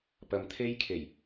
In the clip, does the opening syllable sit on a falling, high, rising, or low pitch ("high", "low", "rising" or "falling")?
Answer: low